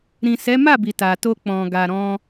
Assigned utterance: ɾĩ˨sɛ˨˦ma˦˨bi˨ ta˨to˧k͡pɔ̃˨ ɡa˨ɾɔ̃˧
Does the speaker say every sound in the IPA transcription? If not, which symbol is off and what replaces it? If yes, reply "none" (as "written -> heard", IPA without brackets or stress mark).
none